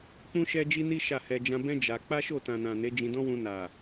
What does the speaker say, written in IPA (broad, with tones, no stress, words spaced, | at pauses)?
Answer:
k͡pũ˦ʃɛ˦d͡ʒi˦ni˦ ʃa˦˨hɛ˧ d͡ʒã˧bɛ̃˦ d͡ʒa˧ k͡pa˦ʃo˦˨tã˨ nã˨ ne˨˦d͡ʒĩ˧dɔ̃˦wũ˧ na˨